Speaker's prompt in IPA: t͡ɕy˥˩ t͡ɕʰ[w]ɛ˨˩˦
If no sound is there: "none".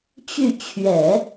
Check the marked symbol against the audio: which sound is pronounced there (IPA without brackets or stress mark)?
ɥ